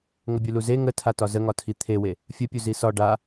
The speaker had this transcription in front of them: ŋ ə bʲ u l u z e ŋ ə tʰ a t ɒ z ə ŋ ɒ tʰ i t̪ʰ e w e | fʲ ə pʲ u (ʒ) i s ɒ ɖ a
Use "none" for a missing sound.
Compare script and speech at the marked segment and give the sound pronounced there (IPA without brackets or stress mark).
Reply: z